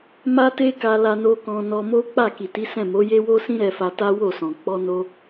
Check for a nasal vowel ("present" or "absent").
present